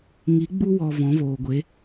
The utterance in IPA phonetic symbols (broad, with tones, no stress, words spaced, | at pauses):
ŋi˨˦ ɡ͡bu˦wɔ˨ vɔ̃˨˦voː˨ɡʷe˨˦